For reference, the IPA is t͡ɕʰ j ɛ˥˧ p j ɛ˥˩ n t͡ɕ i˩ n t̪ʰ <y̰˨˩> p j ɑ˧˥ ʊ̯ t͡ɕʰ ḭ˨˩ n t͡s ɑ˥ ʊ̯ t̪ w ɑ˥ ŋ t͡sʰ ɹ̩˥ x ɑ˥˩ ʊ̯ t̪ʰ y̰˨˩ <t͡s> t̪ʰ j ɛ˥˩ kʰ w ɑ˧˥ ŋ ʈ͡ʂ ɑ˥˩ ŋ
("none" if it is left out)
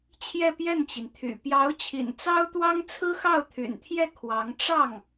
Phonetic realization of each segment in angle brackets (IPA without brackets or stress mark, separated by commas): y̰˨˩, n